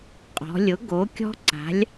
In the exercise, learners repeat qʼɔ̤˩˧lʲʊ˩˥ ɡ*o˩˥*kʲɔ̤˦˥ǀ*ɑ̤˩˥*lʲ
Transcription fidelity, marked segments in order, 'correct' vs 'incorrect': correct, incorrect

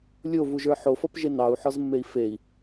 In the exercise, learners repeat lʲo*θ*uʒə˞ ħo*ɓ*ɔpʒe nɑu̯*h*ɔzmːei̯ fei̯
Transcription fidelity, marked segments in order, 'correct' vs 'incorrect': incorrect, incorrect, incorrect

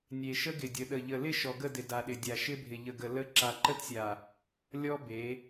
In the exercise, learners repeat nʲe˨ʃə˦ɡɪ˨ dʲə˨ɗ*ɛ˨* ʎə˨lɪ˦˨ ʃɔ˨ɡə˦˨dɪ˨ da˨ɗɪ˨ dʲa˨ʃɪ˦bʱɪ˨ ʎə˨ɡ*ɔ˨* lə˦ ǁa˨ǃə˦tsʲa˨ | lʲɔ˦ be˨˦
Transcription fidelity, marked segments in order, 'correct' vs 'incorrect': incorrect, incorrect

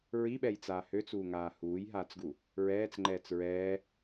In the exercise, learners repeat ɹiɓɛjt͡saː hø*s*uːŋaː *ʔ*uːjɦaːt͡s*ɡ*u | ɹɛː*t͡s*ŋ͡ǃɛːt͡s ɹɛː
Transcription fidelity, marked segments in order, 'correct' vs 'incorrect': incorrect, incorrect, correct, correct

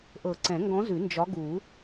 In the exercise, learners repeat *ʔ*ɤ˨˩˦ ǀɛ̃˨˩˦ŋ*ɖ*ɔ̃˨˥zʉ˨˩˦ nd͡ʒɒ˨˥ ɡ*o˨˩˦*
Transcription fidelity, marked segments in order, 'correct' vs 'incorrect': correct, incorrect, incorrect

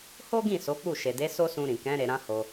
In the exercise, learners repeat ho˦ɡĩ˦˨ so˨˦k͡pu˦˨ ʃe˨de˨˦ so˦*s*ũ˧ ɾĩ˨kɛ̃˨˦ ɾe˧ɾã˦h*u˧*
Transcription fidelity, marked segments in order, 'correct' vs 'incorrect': correct, incorrect

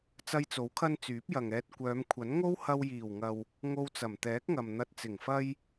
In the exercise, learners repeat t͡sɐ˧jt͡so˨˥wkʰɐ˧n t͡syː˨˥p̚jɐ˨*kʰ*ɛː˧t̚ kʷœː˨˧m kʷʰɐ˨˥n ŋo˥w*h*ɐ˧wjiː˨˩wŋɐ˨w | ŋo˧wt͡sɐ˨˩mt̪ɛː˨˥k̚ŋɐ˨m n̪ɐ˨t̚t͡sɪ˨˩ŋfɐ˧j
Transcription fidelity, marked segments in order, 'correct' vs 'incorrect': incorrect, correct

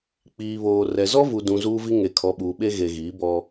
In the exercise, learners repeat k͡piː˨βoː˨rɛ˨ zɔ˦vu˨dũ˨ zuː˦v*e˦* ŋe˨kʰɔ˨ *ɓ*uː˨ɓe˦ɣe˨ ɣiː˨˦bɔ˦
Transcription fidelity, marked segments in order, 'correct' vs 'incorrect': incorrect, correct

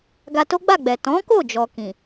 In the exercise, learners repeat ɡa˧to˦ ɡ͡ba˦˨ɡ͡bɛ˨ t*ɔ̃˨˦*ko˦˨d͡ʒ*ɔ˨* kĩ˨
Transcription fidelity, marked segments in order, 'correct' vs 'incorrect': correct, correct

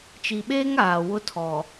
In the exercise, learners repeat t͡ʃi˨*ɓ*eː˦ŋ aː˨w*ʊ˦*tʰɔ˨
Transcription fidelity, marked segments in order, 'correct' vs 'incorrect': correct, correct

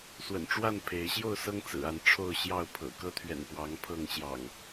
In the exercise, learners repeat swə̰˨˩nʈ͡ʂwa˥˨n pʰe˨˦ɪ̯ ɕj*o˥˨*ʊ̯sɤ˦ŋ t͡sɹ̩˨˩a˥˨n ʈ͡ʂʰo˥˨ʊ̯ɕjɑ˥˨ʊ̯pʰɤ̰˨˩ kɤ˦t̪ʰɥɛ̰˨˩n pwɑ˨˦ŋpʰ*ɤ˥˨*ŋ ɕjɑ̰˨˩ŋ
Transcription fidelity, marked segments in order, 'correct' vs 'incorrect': correct, correct

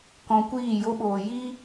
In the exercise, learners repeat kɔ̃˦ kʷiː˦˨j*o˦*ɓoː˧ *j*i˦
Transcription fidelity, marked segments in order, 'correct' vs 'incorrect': correct, correct

